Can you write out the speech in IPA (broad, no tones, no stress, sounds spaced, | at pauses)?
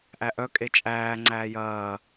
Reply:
ʔ æ ʔ œ kʼ e t͡ʃʼ æː ŋ͡ǀ æː j ɐː